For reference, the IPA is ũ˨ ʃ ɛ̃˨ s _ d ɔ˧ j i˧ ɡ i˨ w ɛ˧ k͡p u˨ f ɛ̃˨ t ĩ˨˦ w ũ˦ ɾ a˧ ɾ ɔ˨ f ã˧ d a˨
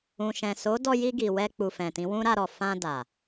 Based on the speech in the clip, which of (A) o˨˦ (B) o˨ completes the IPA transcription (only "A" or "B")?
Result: A